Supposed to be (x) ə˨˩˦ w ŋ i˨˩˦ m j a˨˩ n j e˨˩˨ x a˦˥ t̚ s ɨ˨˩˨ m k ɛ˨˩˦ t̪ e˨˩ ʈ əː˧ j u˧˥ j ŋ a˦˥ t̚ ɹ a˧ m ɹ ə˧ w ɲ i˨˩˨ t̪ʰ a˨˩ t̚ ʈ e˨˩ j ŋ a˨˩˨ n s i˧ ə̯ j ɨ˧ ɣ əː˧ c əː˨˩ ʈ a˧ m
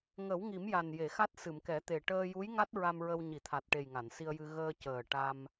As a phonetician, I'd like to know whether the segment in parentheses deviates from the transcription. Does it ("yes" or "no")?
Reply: yes